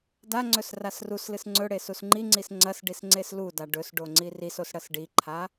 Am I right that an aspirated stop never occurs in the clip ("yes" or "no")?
no